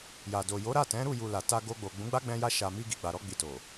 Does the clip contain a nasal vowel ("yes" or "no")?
yes